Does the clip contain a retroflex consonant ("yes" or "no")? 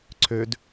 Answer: no